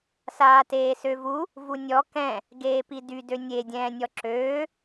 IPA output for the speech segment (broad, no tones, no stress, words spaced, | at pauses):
saːteːsøvu | vunʲɔ kɛ̃ | ɡeːpidy dønʲe dʲɛ̃ːnʲɔǁøː